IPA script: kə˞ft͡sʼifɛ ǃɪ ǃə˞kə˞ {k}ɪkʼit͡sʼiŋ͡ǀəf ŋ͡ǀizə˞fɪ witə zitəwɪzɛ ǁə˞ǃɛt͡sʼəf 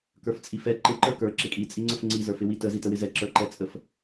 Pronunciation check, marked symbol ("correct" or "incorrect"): incorrect